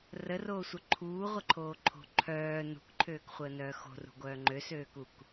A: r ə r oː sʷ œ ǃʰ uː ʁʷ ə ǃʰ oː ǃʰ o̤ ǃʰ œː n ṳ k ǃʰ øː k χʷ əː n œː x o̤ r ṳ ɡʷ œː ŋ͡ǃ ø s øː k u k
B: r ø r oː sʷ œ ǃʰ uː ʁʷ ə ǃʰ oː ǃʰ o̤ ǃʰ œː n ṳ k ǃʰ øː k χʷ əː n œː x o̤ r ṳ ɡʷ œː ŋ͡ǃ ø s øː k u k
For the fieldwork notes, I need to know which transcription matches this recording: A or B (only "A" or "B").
A